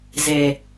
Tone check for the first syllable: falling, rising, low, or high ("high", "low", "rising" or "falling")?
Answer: low